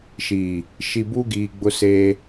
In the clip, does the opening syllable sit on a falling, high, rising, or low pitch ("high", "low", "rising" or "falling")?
low